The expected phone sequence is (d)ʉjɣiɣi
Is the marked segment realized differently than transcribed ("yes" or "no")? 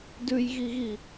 no